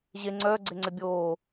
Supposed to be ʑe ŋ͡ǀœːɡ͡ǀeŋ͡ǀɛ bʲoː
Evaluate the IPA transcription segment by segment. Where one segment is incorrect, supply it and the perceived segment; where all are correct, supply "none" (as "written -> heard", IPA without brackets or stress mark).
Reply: none